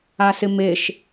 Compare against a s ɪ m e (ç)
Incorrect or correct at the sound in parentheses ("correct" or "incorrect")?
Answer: incorrect